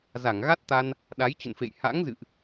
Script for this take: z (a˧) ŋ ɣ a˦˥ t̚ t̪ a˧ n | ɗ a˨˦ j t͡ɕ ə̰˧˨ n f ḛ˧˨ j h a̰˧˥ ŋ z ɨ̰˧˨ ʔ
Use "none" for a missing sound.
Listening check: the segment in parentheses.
a˧˩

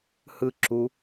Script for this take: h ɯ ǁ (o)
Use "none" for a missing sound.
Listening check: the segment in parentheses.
u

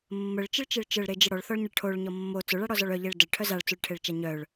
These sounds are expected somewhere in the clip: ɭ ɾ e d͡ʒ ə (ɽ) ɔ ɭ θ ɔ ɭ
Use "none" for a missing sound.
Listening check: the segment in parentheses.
ɽ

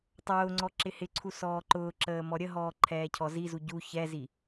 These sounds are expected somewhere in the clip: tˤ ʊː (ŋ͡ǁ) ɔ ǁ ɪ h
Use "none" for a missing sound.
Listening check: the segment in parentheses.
ŋ͡ǀ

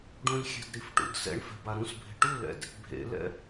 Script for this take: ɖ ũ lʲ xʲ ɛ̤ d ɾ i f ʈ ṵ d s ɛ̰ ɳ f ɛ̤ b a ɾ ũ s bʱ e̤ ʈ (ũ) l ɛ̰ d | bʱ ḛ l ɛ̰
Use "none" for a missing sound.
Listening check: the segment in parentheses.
u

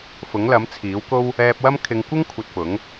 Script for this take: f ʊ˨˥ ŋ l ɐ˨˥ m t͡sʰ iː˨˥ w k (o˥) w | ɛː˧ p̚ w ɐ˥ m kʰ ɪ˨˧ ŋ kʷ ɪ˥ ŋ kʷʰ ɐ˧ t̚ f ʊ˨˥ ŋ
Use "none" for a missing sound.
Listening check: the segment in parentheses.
o˥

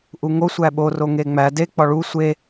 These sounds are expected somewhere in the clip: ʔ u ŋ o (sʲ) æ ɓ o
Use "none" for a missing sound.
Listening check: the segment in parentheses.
sʷ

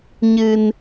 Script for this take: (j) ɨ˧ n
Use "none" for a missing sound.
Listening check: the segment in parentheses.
ɲ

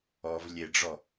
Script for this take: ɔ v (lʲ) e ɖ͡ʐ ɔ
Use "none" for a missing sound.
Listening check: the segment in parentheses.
lʲ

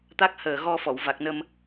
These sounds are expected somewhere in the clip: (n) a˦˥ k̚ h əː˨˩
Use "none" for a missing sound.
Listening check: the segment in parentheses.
t̪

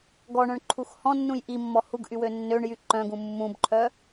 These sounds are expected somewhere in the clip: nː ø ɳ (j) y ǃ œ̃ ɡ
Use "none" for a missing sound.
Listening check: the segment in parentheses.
j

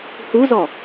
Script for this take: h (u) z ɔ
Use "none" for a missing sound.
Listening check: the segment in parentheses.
u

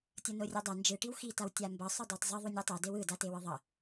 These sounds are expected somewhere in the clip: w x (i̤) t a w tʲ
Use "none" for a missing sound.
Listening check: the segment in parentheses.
i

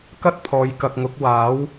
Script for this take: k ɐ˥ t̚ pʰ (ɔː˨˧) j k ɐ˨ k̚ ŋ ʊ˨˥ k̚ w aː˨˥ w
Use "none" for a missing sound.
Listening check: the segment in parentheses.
ɔː˨˧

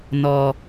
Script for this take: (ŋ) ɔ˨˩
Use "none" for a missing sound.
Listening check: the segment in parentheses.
n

